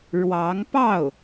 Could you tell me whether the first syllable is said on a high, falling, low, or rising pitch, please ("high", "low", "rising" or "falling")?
rising